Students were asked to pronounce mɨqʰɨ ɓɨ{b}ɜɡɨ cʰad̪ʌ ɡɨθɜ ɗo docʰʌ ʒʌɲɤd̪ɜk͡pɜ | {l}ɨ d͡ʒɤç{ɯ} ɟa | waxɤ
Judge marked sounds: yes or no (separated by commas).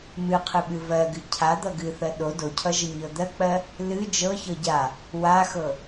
no, yes, no